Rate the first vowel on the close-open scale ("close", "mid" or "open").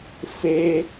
mid